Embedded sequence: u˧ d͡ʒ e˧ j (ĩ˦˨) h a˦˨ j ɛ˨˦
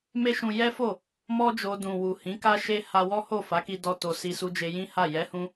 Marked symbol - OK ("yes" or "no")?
no